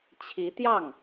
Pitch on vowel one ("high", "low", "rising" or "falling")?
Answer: rising